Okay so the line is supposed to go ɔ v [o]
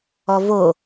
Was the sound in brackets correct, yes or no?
yes